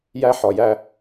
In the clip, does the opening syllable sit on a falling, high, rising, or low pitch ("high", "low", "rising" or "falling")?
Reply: high